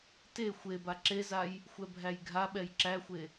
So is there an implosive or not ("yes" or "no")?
yes